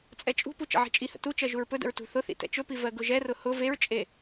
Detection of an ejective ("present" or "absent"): present